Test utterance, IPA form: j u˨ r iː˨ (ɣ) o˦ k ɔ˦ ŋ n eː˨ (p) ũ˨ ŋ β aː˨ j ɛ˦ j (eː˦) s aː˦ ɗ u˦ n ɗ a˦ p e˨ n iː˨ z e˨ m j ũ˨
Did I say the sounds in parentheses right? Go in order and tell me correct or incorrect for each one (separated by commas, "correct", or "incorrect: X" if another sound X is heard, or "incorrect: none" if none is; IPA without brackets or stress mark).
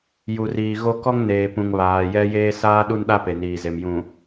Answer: correct, correct, correct